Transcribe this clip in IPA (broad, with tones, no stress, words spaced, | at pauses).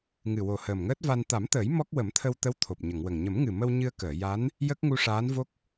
ŋɨ˨˩wo˨˩ həː˨˩mŋəː˦˥t̚va˧n t̪a˨˩˦mt̪əː˨˩˦j mɔ˦˥k̚ wə˨˩˦mt̪ʰə˧wt̪ə˧˥w t̪ʰo˨˩p̚ɲə˨˩˨ŋwə˨˩ŋ ɲə˨˩˦mŋɨ˨˩mə˧w ɲɨ˧ə̯kəː˨˩˨ ja˧˥n | jə˦˥k̚ŋu˧ʂaː˧˥nvo˦˥k̚